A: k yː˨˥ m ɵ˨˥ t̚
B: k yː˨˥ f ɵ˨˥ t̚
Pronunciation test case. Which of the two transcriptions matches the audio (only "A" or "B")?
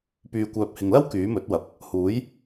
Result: A